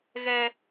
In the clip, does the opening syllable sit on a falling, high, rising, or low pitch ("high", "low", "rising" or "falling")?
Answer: high